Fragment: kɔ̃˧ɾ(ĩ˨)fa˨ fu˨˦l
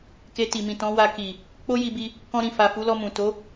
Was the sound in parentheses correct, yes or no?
yes